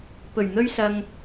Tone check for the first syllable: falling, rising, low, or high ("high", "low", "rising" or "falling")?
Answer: low